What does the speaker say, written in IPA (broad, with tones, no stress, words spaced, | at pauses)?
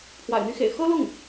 pʰwa̰˨˩ɪ̯n̪y˧˥xḛ˨˩ɪ̯ xɤ˥lʊ˥˩ŋ